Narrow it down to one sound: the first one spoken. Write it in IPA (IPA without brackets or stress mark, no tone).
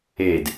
e